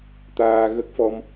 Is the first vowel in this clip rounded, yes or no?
no